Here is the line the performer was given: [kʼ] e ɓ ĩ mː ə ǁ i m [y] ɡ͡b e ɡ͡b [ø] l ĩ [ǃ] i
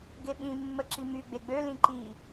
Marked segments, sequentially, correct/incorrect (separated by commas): incorrect, correct, correct, correct